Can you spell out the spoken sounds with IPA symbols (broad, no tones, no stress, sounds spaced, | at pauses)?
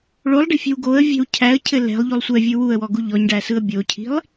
ɭ o lˠ ɖ i̤ fʲ ɛ̤ w ɡ o ə̯ vʲ ɛ̤ w cʰ æ ə̯ cʰ ɘ l ɛ̤ lˠ ʎ u lˠ sʷ ɛ vʲ ɯ w u ə̯ w ɔ ɡ u ʎ ɔ ɲ ɖ æ s ɯ ə̯ bʲ o cʰ i̤ lˠ